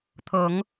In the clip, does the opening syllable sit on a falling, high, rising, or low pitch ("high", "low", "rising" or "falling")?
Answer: rising